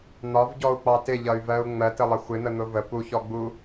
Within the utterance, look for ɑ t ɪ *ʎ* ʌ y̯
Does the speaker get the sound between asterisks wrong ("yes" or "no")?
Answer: no